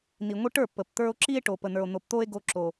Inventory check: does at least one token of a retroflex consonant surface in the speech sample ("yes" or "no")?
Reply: yes